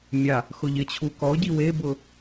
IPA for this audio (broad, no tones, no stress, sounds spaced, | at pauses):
mʲ a | x ʊ ʎ ɪ t͡ɕʰ u k ɔ ɟ i w e b ʊː